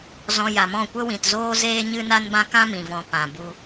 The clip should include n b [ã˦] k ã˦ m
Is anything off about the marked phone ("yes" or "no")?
no